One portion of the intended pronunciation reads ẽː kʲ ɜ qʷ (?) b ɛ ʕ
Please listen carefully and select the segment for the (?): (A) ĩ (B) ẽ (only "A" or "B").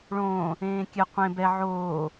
B